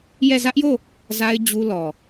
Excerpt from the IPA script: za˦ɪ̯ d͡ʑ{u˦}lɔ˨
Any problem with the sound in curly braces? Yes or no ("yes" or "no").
no